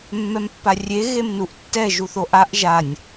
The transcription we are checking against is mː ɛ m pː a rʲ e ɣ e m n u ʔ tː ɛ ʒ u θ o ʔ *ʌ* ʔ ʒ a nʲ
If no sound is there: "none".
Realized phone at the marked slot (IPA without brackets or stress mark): a